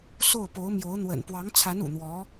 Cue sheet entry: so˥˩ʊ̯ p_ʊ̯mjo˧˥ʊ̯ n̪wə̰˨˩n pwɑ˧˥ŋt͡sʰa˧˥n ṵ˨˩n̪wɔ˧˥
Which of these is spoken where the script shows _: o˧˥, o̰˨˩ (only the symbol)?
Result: o˧˥